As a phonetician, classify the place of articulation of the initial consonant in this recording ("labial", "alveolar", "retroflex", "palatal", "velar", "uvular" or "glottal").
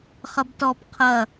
uvular